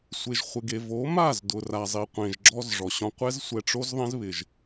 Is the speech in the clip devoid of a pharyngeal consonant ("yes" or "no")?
yes